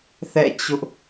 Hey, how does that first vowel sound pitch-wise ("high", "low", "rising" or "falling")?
falling